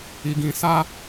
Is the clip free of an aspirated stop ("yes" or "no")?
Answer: yes